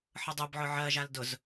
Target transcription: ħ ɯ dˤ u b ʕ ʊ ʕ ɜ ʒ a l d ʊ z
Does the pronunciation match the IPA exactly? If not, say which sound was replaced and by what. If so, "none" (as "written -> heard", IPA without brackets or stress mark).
none